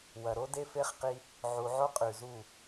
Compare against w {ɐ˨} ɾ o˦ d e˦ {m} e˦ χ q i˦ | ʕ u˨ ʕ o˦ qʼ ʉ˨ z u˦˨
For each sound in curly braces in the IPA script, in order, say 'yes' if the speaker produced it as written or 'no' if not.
yes, no

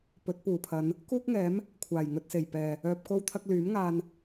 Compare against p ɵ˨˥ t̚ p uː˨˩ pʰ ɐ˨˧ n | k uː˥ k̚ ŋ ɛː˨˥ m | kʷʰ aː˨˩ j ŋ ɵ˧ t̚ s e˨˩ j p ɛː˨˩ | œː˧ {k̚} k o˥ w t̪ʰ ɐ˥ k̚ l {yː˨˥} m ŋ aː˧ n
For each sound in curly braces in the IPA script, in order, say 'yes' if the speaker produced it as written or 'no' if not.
no, yes

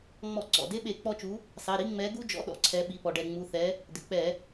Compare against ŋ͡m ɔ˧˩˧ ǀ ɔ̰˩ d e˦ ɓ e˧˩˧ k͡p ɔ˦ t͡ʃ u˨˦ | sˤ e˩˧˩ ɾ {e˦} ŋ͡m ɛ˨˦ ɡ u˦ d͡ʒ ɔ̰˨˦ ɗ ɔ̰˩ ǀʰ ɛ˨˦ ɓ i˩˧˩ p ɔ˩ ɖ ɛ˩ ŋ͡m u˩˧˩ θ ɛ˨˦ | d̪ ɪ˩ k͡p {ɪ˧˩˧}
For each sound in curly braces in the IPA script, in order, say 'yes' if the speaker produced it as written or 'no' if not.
no, no

